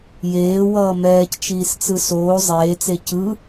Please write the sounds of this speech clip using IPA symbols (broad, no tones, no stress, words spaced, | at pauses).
jeːwʌː mɛːct͡ʃiːst͡sɯ soː zˤeːt͡se cɯ